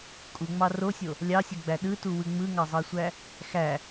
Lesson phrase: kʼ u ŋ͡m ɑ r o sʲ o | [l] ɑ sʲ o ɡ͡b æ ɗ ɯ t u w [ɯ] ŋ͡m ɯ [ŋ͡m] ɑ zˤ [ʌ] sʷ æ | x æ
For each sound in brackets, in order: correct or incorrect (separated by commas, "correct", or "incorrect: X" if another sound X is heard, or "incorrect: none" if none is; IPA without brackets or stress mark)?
incorrect: lʲ, correct, incorrect: ŋ, incorrect: ɑ